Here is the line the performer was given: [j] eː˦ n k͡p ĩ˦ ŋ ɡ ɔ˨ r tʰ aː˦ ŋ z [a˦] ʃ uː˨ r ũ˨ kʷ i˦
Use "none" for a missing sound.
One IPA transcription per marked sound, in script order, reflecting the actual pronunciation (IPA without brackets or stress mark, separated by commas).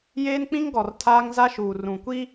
j, a˦